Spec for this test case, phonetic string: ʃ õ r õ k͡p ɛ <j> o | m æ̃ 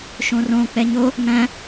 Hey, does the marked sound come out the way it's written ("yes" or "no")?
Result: no